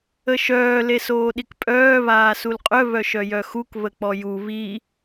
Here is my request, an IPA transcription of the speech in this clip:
ə ʃ œː l e s oː ɗ i k pʼ œː β aː s u l qʼ œ β œ ʃ œ j œ x u k β ə k͡p ɔ j u β i

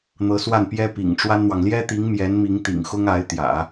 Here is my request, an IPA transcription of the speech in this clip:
n̪ ɤ˧˥ s w a˥˩ n p j ɛ˥ p ḭ˨˩ ŋ ʈ͡ʂ w a˥ n n̪ w ɑ˨ ŋ l j ɛ˥ t̪ i˧˥ ŋ m j ɛ˧˥ n m i˧˥ ŋ t̪ ḭ˨˩ ŋ x ʊ˥ ŋ a˧˥ ɪ̯ t̪ j ä̰˨˩˦

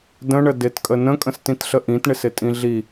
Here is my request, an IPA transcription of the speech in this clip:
d ə̃ ɳ ə d ɪ t kʼ ə n ə̃ kʼ ə̃ s t ĩ t ɬ ə ʔ ĩ t ɳ ɪ s ɪ tʼ ĩ ɮ i

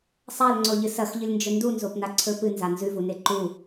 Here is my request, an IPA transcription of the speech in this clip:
sˤ a l ŋ͡ǀ o ʎ ɨ s ɐ x ʎ ɨ lʲ n d͡ʒ ɵ n d u n z o p n a ǀʰ ɵ p ɨ n z a n z ʉ v u n e ǃ u

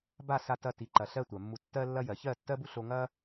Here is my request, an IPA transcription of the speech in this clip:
b a˦˨ s a˧ t ɐ˧ t i˨ ǃ ɐ˨ ɬ ɜ˧ tʷ ɜ˨ mː u˧ tː ɜ˧ lː ɐ˧ j ɜ˨ ç ɜ˦˨ tː ɜ˦ b u˦ ɬ o˧ ŋ ɐ˦

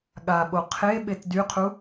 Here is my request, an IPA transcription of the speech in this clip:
ɠ a ɓ o qʰ e ɓ e t d y qʰ u

